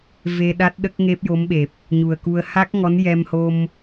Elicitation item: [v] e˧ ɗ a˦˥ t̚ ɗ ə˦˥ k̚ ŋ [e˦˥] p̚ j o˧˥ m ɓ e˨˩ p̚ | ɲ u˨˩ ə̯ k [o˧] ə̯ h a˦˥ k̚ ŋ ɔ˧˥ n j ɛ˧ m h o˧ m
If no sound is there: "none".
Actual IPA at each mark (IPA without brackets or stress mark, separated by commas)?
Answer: v, e˦˥, u˧